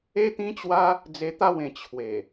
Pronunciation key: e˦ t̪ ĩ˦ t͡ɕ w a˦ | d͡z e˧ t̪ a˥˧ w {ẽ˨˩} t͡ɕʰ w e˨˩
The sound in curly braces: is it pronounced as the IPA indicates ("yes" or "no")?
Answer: yes